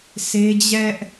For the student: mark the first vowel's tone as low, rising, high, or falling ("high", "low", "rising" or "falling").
high